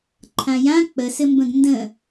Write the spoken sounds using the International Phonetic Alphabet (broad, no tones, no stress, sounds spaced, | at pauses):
ǃʰ ã j ã k͡p ə s ɘ m b ə̃ ɡ n d ə̃